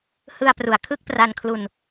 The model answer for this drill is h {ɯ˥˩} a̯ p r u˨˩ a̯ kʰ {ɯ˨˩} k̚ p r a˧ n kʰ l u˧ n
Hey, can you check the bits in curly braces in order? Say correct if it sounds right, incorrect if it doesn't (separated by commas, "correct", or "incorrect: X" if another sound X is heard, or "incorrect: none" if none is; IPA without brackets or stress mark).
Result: incorrect: ɯ˧, incorrect: ɯ˥˩